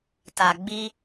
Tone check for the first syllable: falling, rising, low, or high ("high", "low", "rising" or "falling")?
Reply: low